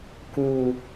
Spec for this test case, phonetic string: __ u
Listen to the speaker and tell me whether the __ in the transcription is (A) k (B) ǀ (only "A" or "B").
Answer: A